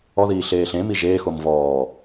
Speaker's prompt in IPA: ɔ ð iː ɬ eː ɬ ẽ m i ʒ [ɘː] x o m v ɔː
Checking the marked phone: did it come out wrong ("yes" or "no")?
yes